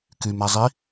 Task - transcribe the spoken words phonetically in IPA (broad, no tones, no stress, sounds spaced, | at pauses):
k y m æ zˤ i